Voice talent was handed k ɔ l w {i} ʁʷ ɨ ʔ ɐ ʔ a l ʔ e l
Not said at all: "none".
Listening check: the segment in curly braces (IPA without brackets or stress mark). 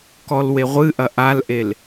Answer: e